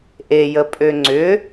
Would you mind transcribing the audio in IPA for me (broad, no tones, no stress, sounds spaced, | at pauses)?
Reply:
ʔ e j ə pʼ ø ŋ͡ǀ ʏ